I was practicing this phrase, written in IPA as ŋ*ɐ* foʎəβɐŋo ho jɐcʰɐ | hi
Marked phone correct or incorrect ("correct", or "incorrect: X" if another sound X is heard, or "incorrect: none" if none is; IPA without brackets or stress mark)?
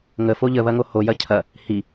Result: incorrect: ə